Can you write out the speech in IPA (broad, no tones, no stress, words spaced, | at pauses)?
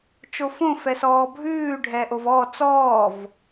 t͡ʃofõ fɛsɔːbʱʉː ɖʱɛːʔovɔː t͡sɔːv